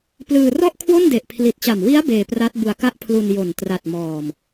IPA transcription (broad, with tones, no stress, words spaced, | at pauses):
plɯː˧rɔ˥˩ʔkʰwo˥˩n de˨˩ʔpʰli˨˩t̚t͡ɕa˨˩mwi˦˥a̯ beː˧pra˦˥t̚ bu˧a̯ka˥˩ʔpʰlu˧n jo˨˩ntra˨˩t̚ mɔː˨˩m